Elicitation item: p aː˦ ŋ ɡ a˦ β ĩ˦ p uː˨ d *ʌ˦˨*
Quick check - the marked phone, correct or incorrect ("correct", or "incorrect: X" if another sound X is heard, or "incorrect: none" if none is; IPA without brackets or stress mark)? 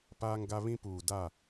incorrect: a˦˨